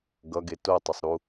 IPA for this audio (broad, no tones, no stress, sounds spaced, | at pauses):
ɡ ʌ ɡ e t o tˤ o sˤ ɾ u